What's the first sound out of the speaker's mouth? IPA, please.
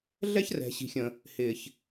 ɮ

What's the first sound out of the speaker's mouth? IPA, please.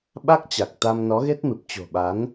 ɓ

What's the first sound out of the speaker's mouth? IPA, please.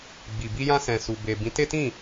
ɡ͡b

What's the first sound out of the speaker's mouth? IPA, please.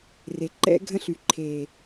r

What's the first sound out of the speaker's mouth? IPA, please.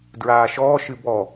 d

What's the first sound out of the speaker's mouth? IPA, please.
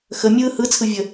x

